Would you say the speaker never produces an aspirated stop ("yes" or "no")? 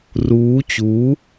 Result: yes